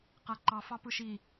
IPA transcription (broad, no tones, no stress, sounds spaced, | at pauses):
q æ ǃ ɑ f ɑ p ɯ ʃ i